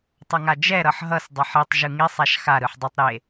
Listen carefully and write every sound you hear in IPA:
tˤ ʌ ŋ a d͡ʒ ɛ ɾ ʌ ħ ɦ ʌ s dˤ ʌ ħ i tˤ ʒ ɯ ŋ i sˤ a ʃ x a ɾ ɯ ħ dˤ ʌ tˤ ɾ e

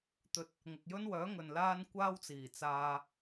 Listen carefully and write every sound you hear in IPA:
t̪ ɵ˧ t̚ | ŋ ʊ˨ k̚ j ɵ˥ n w œː˨˥ ŋ ɵ˨ n l aː˥ n kʷ aː˥ w t͡s iː˨˩ t͡s aː˧

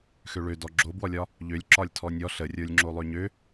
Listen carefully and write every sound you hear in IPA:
x ø ɭ ø d ɔ ɡ͡ǁ o b w ɔ lʲ ɒ | ʎ ø lʲ ǁ ɒ lʲ tʰ ɔ nʲ ɔ ɬ ə rʲ ə˞ lʲ ŋ͡ǁ o lˠ ø ɲ ø

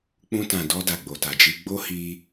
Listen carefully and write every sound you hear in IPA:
k͡p ũ˧ t ã˨ d ɔ˧ d a˨ ɡ͡b o˨ t a˨ d͡ʒ i˧ ɡ͡b o˦ h i˧

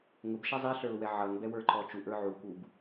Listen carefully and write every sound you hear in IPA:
ŋ ʊ b ʃ ɛ zˤ i ɬ ə˞ ʊ̯ w ɛ ʕ ʌ ŋ b ɛ w ə˞ ǃ ɔ t͡ʃ u ʔ ə˞ ʕ u k u b

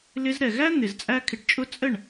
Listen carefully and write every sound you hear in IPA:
l ɪ˧ z ɾ ɛ˨ ɣ æ˦ n̪ ɪ˨ z t͡sʼ æ˦ kʰ ɪ˧ ʈ t͡ʃʼ ʊ˦ t͡sʼ ə˦˨ ɳ

